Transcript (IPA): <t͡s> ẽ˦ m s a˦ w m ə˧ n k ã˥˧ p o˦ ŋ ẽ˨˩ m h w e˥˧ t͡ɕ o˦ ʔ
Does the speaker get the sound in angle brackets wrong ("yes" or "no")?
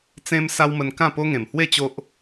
no